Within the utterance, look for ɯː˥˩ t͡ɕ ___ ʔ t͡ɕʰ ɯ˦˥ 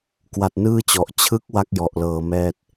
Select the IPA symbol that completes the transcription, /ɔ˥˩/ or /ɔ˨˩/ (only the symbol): ɔ˨˩